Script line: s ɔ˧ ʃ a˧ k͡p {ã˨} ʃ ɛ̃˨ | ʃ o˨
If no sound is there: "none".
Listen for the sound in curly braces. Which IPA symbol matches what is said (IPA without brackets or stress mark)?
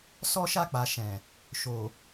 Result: a˨